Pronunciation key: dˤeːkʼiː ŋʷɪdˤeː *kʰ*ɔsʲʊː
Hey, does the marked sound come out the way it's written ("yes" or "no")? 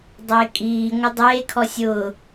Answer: yes